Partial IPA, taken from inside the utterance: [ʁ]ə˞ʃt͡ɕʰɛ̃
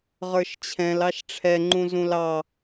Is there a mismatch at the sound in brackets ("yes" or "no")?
no